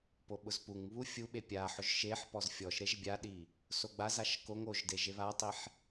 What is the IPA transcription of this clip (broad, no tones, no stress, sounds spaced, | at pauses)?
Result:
p o ɓ ʊ z p u ŋ β u fʲ u ɓ e pʲ a ħ ʊ ʒ ʃ e ħ p ɔ z fʲ ɔ ʃ ɾ e ʒ bʲ a ɗ i | s o ɡ͡b a z a ʃ k o ŋ o ʒ d e ʒ e β a tˤ i ħ